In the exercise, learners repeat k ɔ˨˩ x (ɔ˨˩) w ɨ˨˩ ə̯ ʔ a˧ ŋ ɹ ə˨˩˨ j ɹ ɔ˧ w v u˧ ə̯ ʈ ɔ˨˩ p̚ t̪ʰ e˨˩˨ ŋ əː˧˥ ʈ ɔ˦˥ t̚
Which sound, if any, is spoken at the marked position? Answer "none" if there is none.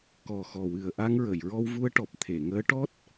ɔ˨˩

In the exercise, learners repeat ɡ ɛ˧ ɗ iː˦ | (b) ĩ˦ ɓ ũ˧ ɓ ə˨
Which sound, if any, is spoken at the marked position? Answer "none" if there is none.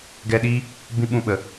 b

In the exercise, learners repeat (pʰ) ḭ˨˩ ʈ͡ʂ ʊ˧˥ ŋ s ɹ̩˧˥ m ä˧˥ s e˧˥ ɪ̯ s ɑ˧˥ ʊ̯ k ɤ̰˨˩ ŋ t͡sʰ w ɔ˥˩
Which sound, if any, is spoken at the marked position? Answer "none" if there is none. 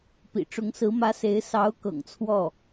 p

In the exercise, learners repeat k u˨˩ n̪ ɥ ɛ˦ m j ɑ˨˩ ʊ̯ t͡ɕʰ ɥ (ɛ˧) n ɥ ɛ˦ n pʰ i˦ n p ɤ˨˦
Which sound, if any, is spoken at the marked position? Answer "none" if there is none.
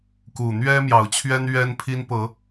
ɛ˦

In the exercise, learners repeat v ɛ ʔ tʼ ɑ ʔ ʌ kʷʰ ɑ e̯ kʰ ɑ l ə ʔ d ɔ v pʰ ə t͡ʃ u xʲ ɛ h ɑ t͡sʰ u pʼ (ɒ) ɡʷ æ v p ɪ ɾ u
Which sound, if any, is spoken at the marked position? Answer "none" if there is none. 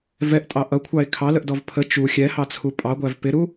ɑ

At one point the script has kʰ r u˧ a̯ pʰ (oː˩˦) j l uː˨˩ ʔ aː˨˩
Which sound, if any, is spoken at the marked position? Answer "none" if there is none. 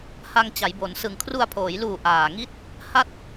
oː˩˦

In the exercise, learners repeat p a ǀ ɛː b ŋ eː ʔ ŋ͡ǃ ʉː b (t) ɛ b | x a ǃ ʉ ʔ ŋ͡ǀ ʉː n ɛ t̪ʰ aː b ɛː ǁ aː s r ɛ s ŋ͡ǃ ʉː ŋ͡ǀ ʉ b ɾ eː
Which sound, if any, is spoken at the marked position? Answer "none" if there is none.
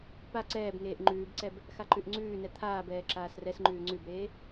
ǀ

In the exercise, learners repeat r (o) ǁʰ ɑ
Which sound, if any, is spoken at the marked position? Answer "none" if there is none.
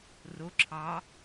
o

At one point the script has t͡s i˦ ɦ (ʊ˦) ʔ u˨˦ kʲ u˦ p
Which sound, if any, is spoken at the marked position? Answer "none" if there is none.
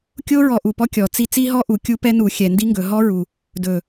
ɔ˦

